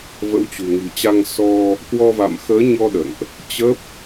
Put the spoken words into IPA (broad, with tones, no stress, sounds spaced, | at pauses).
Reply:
v ə̰˧˥ w t͡ɕ ṳ˨˩ ŋ i̤˨˩ t͡ɕ a˧ ŋ s ɔ˧ | k w ɔ˧ v a̰˧˨ m x əː˨˦ ɲ ɔ˧ ɗ ə̰˧˨ n ʔ | t͡ɕ ə˦˥ p̚